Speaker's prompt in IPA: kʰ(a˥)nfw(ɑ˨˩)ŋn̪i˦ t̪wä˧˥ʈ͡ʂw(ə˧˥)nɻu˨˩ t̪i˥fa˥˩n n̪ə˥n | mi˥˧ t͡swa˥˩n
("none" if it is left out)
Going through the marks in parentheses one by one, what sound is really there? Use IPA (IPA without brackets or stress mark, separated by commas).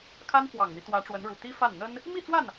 a˥, ɑ˨˩, ə˧˥